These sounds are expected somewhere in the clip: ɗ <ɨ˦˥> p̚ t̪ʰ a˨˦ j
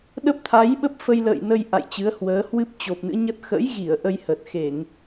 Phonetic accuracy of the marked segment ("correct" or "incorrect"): incorrect